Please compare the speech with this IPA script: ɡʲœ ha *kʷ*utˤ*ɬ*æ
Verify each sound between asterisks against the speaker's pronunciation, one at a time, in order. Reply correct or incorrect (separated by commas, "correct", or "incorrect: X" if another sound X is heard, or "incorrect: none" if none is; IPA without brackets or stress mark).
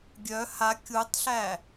incorrect: kʲ, correct